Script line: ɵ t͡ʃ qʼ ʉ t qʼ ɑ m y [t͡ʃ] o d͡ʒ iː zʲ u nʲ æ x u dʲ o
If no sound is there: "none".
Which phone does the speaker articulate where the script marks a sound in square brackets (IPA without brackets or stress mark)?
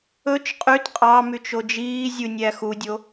t͡ʃ